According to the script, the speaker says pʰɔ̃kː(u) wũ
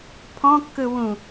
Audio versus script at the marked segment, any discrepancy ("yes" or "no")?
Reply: yes